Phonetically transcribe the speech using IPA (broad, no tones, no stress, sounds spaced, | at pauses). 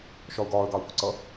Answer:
ʃ ɒ ʊ̯ ɡ ɒː ə̯ ɡ ɑ ʊ̯ p ʊ ǀ ʌ